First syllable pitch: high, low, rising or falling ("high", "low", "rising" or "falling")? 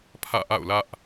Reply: falling